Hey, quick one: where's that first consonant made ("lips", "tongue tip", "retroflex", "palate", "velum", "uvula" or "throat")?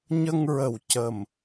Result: palate